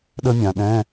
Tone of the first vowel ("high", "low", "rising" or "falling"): high